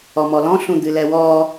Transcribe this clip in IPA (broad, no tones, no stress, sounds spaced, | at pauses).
ɔ m ɔ l ɔ̃ ɬ ũ d̪ ɨ l ɛ w ɔ